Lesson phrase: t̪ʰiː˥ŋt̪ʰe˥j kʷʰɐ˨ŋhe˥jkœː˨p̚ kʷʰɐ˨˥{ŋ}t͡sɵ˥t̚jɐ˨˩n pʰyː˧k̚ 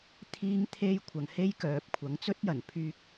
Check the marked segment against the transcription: correct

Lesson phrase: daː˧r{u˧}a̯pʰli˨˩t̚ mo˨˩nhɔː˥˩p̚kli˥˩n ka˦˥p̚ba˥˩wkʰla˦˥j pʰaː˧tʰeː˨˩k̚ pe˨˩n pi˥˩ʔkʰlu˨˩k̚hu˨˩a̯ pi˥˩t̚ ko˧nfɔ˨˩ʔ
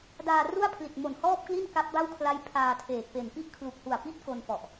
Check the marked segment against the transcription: incorrect: u˥˩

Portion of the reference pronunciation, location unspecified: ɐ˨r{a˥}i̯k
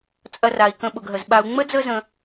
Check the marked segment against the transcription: incorrect: a˩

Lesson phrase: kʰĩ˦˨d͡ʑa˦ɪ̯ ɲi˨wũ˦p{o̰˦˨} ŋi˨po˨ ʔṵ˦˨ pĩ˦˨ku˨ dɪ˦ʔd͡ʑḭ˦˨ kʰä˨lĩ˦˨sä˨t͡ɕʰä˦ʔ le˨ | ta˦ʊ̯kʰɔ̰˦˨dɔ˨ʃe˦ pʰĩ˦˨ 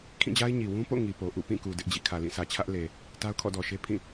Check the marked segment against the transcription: correct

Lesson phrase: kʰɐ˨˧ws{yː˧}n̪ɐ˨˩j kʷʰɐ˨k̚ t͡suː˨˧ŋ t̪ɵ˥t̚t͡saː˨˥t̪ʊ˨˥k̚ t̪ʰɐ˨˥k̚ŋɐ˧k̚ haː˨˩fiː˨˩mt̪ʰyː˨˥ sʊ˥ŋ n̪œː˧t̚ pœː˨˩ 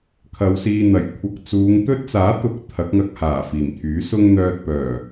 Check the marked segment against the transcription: incorrect: iː˧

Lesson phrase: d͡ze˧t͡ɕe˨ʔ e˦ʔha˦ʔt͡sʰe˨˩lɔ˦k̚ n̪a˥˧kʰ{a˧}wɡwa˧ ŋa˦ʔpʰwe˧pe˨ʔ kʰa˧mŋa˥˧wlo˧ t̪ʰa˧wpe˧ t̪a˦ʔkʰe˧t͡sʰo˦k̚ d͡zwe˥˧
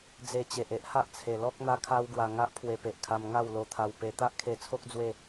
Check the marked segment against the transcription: incorrect: a˦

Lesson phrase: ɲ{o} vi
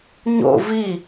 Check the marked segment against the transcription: incorrect: o̰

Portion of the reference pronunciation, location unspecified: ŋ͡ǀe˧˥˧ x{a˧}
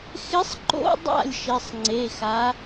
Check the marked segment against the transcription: incorrect: a˧˥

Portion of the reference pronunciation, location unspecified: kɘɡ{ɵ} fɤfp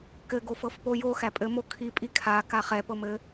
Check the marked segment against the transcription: incorrect: o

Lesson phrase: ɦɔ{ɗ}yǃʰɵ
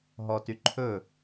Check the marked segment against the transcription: incorrect: t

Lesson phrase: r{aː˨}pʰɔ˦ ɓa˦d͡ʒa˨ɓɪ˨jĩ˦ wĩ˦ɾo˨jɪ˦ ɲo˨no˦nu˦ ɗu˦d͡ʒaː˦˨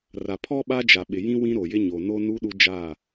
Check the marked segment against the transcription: incorrect: a˨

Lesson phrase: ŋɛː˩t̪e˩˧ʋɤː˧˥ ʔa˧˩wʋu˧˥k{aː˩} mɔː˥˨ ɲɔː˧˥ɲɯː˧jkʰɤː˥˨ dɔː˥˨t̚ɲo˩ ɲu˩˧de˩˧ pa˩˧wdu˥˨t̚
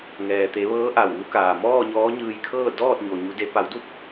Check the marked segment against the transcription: correct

